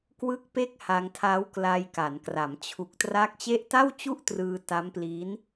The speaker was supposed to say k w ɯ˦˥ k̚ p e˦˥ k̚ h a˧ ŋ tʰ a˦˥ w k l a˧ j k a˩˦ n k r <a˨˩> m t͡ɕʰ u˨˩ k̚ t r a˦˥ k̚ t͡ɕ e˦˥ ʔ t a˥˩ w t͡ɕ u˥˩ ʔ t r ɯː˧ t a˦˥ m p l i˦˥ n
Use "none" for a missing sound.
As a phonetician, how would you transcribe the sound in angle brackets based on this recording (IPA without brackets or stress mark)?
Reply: a˩˦